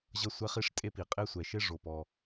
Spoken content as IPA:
ʑ ʌ˥ sʷ ɛ˥ χ i˥ ʂ tʼ e˥ p i˩ qʼ e˥ sʷ ɛ˩ ʃ e˥ ʐ o˩ p ɔ˩

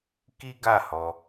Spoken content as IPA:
k i˦ ɡ a˦˨ h ɔ˧

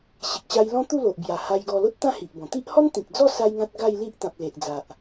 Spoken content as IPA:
ɕ i˨ k̚ ɕ a˧ j l ɔ̃˦ t̪ u˥˧ l o˨ ʔ b j a˨˩ h a˧ j ɡ ɔ˧ l o˦ t̚ t̪ ã˥˧ h i˨ ʔ b ɔ̃˨˩ t̪ i˦ ʔ h ɔ˦ n t̪ ĩ˨ k̚ d͡z ɔ˥˧ s a˦ j ŋ ã˦ t̚ ɡ a˥˧ j l i˦ ʔ t̪ ã˨ p̚ l e˨ ʔ d͡z a˨ ʔ

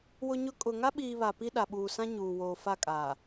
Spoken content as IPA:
w ʊ˦ ɲ ʊ˦ kʼ ʊ˨ ŋ a˦ ɓ iː˨ β a˨ p i˦ ɗ a˨ ɓ uː˨ s ã˦ ɲ uː˨ w oː˨ f a˦˨ kʼ aː˨

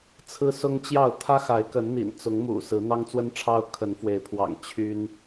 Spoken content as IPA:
t͡sʰ ɹ̩˦ s ʊ˦ ŋ t͡ɕ j ɑ˥˨ ʊ̯ t̪ʰ ä˦ x a˨˦ ɪ̯ k ə˨˦ n n̪ ḭ˨˩ n t͡s ʊ˨˦ ŋ m ṵ˨˩ s ɹ̩˨˦ n̪ ɑ˦ ŋ t͡s w ə˦ n ʈ͡ʂʰ ɑ˦ ʊ̯ kʰ ə˨˦ n f w e˨˦ ɪ̯ pʰ w ɑ̰˨˩ ŋ t͡ɕʰ y˦ n

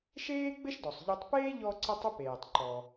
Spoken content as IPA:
ʃ eː˥ ɡ͡b ɘ˥ ʃ d ɔ˩ sˤ ʎ ʏ˧ tˤ p eː˥ ʎ ɔ˧ ǀ ə˧ tˤ ʏ˥ p eː˩ tˤ ǃ ɔ˩

